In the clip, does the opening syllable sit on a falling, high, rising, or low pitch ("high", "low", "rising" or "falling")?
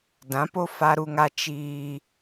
rising